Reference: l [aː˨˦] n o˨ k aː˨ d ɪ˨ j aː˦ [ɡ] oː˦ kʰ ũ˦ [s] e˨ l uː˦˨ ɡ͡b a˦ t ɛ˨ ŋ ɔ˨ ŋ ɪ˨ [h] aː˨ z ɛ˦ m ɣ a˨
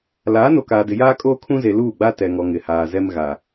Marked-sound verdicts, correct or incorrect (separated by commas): correct, incorrect, incorrect, correct